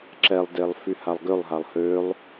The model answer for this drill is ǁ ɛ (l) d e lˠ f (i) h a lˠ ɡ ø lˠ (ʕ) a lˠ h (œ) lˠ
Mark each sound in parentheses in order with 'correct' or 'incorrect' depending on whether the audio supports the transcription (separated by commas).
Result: incorrect, incorrect, incorrect, incorrect